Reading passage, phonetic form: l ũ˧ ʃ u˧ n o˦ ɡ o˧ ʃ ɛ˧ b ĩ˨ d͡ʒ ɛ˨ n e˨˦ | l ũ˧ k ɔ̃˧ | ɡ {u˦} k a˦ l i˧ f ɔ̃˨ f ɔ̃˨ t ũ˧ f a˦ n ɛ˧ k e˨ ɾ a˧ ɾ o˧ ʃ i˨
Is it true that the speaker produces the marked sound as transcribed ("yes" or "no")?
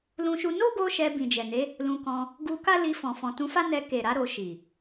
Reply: no